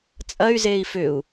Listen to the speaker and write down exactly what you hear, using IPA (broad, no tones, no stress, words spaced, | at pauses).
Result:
t͡sʼɐy̯zei̯ fʏu̯